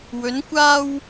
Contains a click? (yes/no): no